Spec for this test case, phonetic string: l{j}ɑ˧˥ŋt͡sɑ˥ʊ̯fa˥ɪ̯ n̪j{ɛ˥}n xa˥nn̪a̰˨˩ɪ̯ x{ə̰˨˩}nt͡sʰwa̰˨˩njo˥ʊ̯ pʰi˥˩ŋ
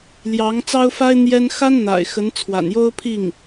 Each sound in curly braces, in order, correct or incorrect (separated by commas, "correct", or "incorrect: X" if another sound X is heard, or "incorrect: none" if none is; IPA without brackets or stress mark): correct, correct, incorrect: ə˧˥